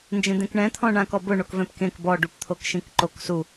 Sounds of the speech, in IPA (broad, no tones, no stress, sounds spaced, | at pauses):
n d͡ʒ ẽ d̪ ẽ k ɳ ɛ̃ t̪ʰ ɔ̃ ɳ ã k ɔ b ʊ ɳ o k v ɛ̃ p k ẽ k b ɔ ɖ u p t̪ʰ o k ʃ ĩ k ǃ o k s u